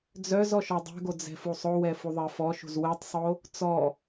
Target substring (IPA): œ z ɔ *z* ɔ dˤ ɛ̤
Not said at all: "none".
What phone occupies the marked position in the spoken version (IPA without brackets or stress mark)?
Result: ʃ